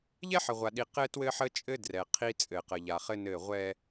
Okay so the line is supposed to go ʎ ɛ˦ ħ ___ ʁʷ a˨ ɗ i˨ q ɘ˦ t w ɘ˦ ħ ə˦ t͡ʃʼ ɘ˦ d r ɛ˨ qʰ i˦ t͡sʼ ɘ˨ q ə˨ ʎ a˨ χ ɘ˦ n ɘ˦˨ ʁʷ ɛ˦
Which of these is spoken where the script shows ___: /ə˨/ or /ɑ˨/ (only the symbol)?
ə˨